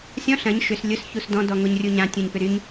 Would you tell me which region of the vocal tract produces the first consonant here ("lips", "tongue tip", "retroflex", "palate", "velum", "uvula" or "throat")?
tongue tip